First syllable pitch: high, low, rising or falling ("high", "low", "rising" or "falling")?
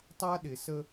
high